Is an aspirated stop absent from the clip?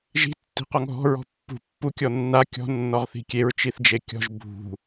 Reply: yes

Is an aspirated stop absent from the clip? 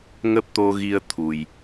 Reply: no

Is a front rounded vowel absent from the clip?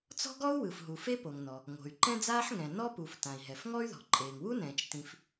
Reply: no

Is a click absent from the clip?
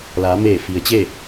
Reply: yes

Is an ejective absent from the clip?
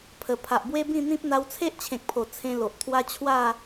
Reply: yes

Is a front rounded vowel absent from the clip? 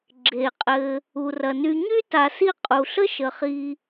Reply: no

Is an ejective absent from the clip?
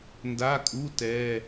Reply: no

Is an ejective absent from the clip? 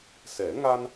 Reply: yes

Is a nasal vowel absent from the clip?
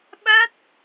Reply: yes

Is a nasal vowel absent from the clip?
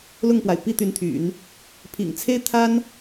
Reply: yes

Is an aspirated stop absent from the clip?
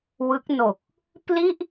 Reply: yes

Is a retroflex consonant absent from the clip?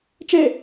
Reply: yes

